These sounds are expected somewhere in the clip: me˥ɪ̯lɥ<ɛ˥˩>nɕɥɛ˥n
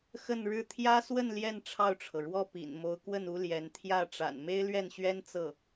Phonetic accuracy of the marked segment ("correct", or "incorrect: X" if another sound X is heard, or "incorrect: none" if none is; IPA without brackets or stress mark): correct